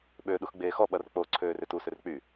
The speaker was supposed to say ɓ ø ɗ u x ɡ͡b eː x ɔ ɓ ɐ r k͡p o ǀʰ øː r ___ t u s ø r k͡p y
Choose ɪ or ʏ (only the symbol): ʏ